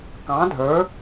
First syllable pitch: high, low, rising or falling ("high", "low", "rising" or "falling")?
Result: rising